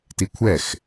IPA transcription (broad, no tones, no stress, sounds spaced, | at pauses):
t i kʷʰ ɛ x